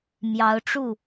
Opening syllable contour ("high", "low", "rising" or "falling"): rising